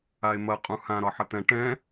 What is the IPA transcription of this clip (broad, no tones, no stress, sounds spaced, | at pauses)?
a e̯ m ɐ qʼ ũ h ã ɾ ɒ ħ ɐ t̪ ɛ̃ ʈ ɛ̃